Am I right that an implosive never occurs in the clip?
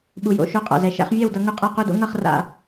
no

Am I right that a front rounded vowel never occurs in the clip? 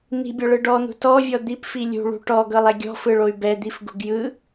no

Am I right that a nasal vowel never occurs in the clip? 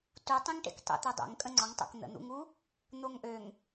no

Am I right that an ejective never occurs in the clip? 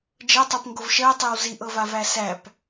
yes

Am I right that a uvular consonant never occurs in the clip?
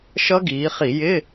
no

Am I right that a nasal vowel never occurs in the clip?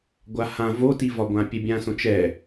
no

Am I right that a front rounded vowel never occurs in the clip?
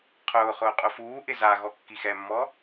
yes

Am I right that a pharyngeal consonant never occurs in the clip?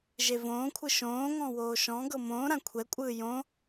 yes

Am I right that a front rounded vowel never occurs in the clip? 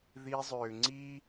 no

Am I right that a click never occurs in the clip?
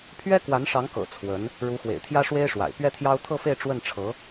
yes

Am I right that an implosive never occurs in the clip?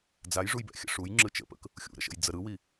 yes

